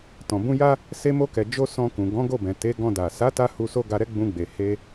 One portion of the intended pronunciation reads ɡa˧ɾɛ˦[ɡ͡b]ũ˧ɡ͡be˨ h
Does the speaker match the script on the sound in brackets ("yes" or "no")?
yes